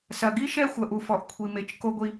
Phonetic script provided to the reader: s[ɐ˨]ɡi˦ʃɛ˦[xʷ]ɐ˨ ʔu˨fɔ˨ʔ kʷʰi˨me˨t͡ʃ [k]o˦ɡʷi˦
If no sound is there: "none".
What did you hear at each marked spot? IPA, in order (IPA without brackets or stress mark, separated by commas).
ɐ˨, xʷ, k